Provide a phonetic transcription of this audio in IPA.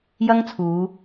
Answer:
j ɐ˥ ŋ t͡sʰ uː˨˧

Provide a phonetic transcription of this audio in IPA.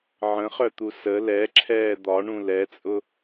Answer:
ʕ ə̃ χ œ t̪ u s ə l ɛ ǁʰ ɛː d̪ ɒ ɳ ũ l ɛ t͡sʼ ʊ

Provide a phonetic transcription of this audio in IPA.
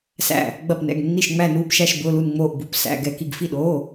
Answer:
s æ̰˧˩ | ɡ͡b ɐ˧˩ p n ɛ̰˩˧˩ ɡ nː i˧˩ ʃ ŋ͡m æ˧˩ n uː˧˩ p ʃ æ˧˩ ʃ b ʊː˩˧˩ l u˧˩ n ŋ͡m oː˧˩ ʔ b u˩˧˩ p s æ̰˩˧˩ ɡ ɛ˧˩ k i˧˩ ɡ f i˧˩ ɗ oː˩˧˩

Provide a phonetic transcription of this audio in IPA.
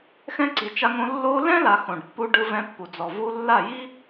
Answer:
x ɛ̃˦ ǀ i˨ t͡ʃ a˧ ŋ õ˧ lː o˧ l ɛ̃˦ l a˨ x õ˨ ɖ pː u˧ ɖ ɯ˧ v ɛ̃˧ pː u˨ d͡z ɔ˨ v u˧ lː a˦˨ j i˦

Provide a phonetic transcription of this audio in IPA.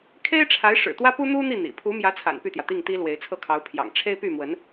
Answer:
kʰ e˥ ɪ̯ ʈ͡ʂʰ a˧˥ ɪ̯ ʂ ɻ̩˨˩ t̪ w ä˥ p u˥ n̪ u˥ n̪ i˥˩ n̪ ḭ˨˩ pʰ u˧˥ m j ä˧˥ t͡sʰ a̰˨˩ n p y˥˩ t̪ j ä˩ t̪ i˥˩ ŋ t̪ i˥ l w e˧˥ ɪ̯ t͡sʰ ɤ˥˩ kʰ ɑ˧˥ ʊ̯ pʰ j ɑ̰˨˩ ŋ ʈ͡ʂʰ e˥ ɪ̯ p y˥˩ m w ə˧˥ n

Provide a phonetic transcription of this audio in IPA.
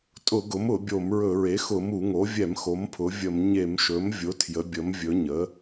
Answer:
tʼ ʊ˧˩˧ ɡ ʊ˩˥ m ʊ˧˩˧ bʲ o˧˩˧ m ɹ ɵ˧˩˧ ɹ e˩˥ x ʊ˧˩˧ m u˧˩˧ ŋ o˩˥ vʲ ɛ˧˩˧ m x o˩˥ m pʰ ʊ˩˥ vʲ ə˧˩˧ m ɲ e˧˩˧ m ʃ ɵ˩˥ m vʲ ʊ˩˥ tʰ j ə˩˥ bʲ ə˩˥ m vʲ ɵ˩˥ ɲ ə˩˥

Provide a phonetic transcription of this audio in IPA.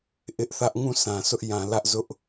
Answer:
ʔ ɪ˦ ʔ θ ä˦ ʔ ŋ ũ˦˨ sʰ ã˨ sʰ ʊ˦ ʔ j ã˨ l ä˦ ʔ z ʊ˦ ʔ

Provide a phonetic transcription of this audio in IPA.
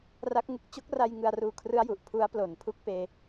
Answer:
r a˦˥ k̚ ŋ ɯ˦˥ k̚ t͡ɕ o˦˥ k̚ r a˧ j ŋ ɯ˧ a̯ r uː˧ kʰ r ɯ˦˥ a̯ j u˨˩ ʔ pʰ u˦˥ a̯ p l o˨˩ n pʰ u˦˥ k̚ p eː˧

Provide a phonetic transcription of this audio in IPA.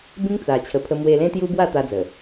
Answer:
b ĩ˦ ŋ t͡s a˨˩ t͡ɕʰ ə˨˩ pʰ ə˧ m w e˧ l ẽ˦ t̪ j u˦ b w a˥˧ t̪ a˦ d͡z ə˨˩

